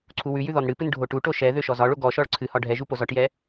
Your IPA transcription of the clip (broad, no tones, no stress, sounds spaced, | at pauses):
ǀʰ u w ʉ j ʉ ð ɔ n ɽ ɨ p ɨ n ɖʱ o ʈ u ʈ o ʃ ɛ ð ø ʃ ɔ z ɒ ɭ o ɡ ɔ ʃ ɔ ɭ ǀʰ ɨ h ɒ ɖʱ ɛ ʒ u p o z ɒ ʈ j ɛ